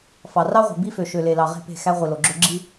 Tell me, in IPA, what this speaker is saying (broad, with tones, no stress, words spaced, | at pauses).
fɑ˨rɑ˦ʁʷe̤˨ bi˦fø˨ ʃø˨le˨ lɑ˨ʁe̤˦˨pe̤˦˨ xæ˦ʁʷi˨lo˨ɡ͡ǁø˦ ɡ͡ǁi˦